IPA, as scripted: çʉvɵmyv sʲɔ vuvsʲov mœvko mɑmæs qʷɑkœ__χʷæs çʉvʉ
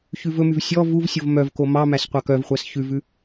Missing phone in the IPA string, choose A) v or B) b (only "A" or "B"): A